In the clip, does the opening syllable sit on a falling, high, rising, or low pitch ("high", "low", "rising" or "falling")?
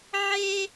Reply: high